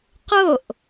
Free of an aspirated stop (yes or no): yes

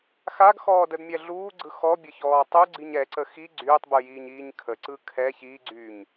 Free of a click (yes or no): no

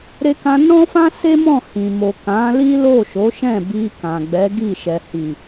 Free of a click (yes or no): yes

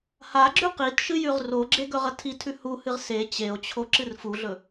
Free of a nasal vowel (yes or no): yes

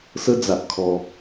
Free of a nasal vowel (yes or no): yes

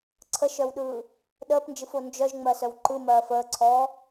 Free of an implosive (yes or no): no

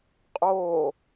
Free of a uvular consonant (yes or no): no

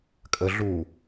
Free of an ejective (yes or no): no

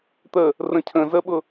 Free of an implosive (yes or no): no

